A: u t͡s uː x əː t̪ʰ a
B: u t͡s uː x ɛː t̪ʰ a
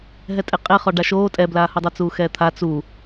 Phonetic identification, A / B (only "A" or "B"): B